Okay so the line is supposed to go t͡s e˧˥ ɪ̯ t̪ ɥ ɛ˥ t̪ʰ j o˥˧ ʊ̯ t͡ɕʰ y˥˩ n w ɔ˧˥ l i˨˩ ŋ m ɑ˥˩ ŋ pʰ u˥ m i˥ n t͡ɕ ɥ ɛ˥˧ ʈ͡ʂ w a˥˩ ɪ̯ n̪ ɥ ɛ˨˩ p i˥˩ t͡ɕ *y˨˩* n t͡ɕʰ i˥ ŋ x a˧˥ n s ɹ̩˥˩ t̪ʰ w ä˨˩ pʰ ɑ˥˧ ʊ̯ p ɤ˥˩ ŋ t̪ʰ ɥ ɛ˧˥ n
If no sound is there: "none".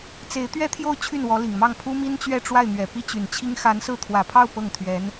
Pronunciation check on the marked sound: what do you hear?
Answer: y˨˩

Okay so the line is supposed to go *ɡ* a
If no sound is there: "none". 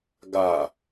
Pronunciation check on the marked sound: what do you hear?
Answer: ɡ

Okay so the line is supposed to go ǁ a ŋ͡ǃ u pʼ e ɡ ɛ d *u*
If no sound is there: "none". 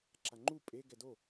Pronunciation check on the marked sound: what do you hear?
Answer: o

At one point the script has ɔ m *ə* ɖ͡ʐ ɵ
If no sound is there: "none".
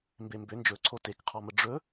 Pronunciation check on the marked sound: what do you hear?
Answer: ə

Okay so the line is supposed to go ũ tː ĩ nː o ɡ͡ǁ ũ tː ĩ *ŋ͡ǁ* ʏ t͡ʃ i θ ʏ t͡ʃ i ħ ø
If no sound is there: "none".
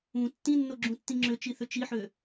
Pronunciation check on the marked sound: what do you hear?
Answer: ŋ͡ǁ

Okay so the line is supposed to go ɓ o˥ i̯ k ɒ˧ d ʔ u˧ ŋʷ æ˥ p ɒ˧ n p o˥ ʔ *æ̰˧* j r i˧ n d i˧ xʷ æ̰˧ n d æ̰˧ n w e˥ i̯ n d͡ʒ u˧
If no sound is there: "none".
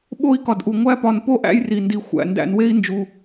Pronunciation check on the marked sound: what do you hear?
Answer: æ̰˥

